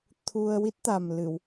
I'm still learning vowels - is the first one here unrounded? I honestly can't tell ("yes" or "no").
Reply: no